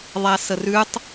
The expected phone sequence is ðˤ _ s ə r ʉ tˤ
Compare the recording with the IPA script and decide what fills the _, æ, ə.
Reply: æ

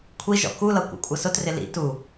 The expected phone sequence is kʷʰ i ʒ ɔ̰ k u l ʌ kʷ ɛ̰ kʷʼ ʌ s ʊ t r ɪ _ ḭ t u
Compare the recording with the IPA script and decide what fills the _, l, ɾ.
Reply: l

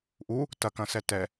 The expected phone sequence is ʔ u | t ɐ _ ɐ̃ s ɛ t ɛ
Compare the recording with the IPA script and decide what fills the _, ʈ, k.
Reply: k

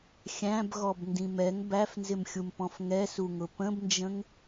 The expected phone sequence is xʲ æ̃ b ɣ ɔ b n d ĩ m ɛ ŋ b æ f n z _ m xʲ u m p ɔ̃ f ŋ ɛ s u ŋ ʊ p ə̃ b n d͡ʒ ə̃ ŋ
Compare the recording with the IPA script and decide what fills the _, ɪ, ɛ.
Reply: ɪ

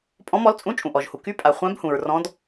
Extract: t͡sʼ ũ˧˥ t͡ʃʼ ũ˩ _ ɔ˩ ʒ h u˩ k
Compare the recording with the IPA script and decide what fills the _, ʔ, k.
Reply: ʔ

